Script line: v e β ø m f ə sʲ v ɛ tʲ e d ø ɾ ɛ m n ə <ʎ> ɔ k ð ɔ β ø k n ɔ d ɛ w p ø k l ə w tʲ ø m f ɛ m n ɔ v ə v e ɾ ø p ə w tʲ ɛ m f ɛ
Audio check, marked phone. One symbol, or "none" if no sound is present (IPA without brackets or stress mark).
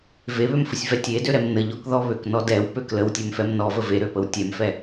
ʎ